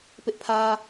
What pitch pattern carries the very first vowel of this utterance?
high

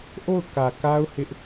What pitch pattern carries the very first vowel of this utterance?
falling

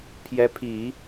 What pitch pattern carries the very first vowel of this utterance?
rising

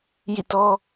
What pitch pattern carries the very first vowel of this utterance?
falling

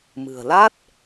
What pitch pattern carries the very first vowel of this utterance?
low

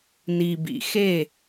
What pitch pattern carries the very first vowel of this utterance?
low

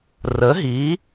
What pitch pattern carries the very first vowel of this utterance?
rising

